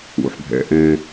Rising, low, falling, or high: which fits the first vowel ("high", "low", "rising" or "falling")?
low